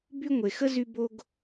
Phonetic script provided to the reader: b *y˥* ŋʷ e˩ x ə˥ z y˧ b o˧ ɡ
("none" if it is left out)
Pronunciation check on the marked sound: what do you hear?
y˥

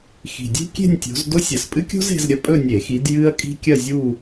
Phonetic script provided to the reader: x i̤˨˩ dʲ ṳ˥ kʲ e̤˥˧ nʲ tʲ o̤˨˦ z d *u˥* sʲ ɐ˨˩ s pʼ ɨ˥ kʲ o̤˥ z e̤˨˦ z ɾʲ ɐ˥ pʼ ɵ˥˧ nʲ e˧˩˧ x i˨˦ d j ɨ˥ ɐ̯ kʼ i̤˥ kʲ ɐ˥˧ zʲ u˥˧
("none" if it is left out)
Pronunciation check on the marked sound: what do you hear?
o˥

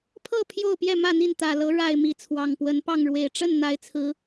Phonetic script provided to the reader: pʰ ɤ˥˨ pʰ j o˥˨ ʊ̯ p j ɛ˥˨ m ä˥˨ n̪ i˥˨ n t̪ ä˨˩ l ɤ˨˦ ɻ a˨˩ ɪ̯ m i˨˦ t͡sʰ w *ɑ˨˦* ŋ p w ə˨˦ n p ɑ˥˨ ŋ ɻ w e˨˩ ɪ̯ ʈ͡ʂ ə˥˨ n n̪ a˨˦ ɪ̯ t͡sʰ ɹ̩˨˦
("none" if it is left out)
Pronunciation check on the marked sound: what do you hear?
ɑ˨˩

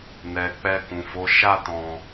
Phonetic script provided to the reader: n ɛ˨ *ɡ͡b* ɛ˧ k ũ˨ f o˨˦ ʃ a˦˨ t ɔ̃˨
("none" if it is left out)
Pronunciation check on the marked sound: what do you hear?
k͡p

